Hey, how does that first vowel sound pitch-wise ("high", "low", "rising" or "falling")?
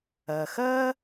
low